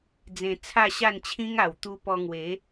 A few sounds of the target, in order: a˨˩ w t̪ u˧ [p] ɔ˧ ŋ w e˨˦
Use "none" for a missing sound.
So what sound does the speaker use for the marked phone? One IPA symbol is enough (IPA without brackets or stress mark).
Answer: p